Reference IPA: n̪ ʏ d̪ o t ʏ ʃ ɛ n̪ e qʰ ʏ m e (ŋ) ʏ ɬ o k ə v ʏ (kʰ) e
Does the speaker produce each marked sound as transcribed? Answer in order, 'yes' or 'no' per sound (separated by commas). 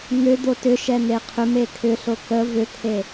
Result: no, yes